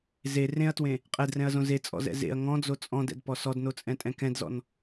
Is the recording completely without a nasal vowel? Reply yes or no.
no